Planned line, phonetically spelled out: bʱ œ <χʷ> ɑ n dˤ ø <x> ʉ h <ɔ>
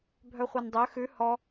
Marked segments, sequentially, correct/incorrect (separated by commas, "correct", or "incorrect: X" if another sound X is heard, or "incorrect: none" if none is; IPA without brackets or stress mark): correct, correct, correct